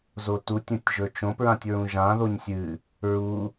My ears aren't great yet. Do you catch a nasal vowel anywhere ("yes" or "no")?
yes